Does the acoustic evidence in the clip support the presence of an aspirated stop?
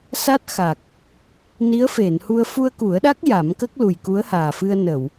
no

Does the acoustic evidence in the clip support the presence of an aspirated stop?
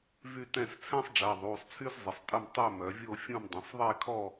yes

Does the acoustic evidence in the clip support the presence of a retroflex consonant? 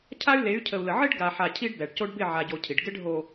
yes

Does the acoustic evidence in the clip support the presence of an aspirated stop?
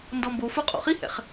no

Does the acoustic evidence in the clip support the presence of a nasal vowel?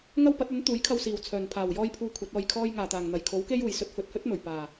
no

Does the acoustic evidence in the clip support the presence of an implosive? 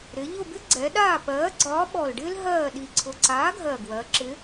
yes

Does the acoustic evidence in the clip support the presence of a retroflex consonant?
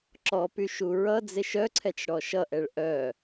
yes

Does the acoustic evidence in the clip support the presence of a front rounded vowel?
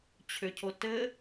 yes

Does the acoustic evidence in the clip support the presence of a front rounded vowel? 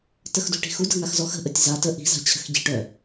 yes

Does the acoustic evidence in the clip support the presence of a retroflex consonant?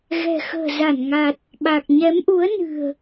no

